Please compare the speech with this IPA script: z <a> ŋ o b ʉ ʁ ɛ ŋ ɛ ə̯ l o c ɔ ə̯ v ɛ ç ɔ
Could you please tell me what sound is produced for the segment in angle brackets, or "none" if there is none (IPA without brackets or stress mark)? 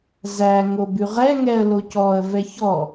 æ